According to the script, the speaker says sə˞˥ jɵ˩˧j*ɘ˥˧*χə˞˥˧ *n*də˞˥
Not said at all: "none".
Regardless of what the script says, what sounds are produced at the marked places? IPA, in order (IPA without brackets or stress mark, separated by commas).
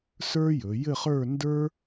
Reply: ɘ˥˧, n